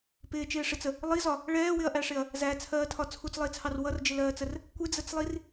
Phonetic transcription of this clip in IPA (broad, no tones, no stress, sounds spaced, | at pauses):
p ɪː t͡ʃ ɪː ʂ ɪ t͡s ə | lˠ i z ɒ | ɭ ɛː w ɪ ɐ̯ ʔ æ ʂ ɪ ɐ̯ | z æ t͡sʰ ɜː tʰ ɒ t͡sʰ u t͡s lˠ ɪː t͡sʰ ɑ r w ʌ r d͡ʒ ɪ l ɜː t͡s ə r | kʷ ɪ d͡z ə t͡s lˠ i r